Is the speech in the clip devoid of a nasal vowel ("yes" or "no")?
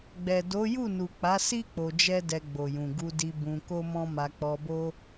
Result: no